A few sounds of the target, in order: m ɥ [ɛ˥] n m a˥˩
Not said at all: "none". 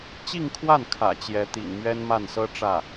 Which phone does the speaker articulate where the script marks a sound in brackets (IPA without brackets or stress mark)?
ɛ˥